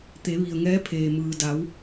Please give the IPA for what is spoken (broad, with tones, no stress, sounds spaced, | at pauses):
t̪ e˩˧ ʋ i˩ ə̯ ŋ ɛː˧˥ pʰ eː˩ m ɯː˩ d a˩˧ w